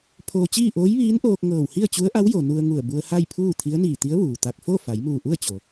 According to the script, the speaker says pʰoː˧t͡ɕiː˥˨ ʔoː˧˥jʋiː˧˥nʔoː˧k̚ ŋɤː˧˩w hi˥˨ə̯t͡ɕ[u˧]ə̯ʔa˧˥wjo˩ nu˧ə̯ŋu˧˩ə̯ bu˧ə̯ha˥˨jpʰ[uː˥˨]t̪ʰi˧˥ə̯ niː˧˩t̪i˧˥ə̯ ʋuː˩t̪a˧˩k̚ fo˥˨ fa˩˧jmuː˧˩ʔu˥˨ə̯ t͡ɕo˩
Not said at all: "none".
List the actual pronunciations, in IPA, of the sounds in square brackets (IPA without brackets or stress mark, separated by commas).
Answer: u˧˥, uː˥˨